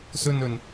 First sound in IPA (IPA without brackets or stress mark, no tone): s